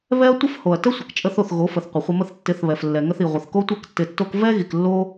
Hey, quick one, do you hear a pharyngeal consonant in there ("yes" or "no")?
no